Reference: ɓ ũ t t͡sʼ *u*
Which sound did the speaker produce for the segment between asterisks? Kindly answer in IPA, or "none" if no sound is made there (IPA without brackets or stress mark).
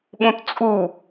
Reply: u